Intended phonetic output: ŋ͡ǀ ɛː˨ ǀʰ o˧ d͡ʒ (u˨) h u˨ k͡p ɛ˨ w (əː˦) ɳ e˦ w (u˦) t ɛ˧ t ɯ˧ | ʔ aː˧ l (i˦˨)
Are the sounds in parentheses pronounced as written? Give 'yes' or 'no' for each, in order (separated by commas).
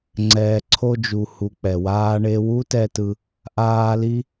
yes, no, yes, no